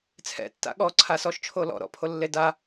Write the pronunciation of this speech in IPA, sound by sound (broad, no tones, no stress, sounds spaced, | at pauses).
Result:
t͡sʰ ɛ̰ tː a̰ ɠ ɔ ǀʰ a s ɔ ʃ t͡ʃʰ o l ɔ̰ ɾ ɔ̰ pʰ o lː e d a